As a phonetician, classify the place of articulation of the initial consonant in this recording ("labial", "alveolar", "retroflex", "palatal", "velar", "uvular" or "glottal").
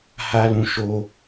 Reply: glottal